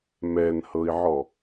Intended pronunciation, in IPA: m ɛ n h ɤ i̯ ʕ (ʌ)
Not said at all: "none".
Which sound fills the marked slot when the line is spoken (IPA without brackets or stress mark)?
ɔ